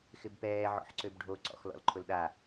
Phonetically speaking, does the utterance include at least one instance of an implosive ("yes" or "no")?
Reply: yes